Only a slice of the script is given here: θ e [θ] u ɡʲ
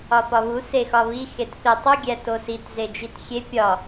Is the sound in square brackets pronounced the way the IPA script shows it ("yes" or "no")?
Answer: no